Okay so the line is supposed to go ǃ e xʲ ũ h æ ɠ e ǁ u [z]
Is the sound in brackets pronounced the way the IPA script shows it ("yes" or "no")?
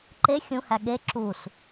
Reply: no